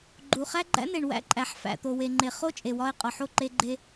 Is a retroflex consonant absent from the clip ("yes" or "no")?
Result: no